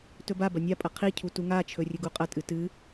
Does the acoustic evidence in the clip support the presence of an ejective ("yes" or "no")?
yes